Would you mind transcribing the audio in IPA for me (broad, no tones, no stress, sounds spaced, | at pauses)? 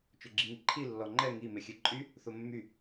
t͡ʃ ø ɡ͡ǁ i ŋ i ǃʰ i lː ɔ ŋ͡ǃ ɛ ŋ i m e xʲ e ǃʼ y | θ o mː y